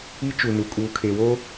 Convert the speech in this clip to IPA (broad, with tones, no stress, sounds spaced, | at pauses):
i˦ t͡ʃ u˨ n u˨ kʼ uː˨ kʰ e˨ w oː˦